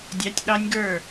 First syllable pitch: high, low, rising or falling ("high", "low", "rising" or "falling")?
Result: rising